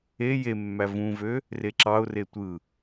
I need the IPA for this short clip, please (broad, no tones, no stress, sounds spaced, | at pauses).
e j e mː æ v ũ v ø | r e ǁ ɑ ʊ̯ r e tʷ ɯ